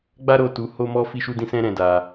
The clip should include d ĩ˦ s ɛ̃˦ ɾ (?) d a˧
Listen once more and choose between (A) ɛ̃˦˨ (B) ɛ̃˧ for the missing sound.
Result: B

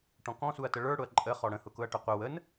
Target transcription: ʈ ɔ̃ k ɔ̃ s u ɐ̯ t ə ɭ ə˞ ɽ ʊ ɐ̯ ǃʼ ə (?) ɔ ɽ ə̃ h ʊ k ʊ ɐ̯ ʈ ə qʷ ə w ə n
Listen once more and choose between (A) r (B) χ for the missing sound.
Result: B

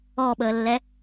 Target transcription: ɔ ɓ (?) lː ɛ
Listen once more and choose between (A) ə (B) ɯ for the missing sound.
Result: A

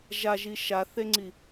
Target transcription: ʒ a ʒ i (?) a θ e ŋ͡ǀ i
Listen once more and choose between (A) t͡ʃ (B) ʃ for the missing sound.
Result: B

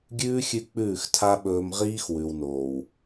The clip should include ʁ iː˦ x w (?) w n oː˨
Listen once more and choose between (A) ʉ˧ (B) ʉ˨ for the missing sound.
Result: B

